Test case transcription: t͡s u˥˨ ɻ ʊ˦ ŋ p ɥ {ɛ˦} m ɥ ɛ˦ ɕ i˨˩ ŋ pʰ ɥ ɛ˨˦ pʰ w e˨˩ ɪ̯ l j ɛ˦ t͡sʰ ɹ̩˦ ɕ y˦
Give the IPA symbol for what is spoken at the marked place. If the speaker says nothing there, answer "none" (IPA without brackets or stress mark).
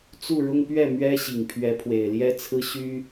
ɛ˥˨